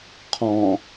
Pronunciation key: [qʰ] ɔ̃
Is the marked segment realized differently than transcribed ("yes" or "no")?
no